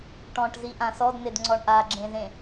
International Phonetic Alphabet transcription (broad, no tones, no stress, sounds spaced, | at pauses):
ʈ ɔ̃ ʈ z i ʔ ã s ɔ d n̪ e d ŋ͡ǀ ɔ ɳ ʔ a ɡ͡ǁ ẽ z ẽ